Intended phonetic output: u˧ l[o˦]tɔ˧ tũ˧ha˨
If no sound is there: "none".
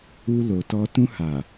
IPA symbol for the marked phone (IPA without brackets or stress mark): o˨